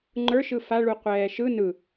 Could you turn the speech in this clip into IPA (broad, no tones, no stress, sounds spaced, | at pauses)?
ŋ͡ǃ ə˞ ʃ ɯ f a ɭ u qʷ ɛː ʃ ɯ n ɯ